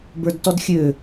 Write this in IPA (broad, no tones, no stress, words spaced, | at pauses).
bə˞dtɔdxʲø